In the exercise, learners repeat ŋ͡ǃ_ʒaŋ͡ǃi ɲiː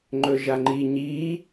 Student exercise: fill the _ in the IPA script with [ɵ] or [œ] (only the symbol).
ɵ